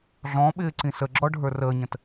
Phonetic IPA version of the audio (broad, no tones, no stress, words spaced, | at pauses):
ɮɔ̃ɓɪː ǀĩsəɡ͡ǁɔ ɖʱə˞rəːɲə̃t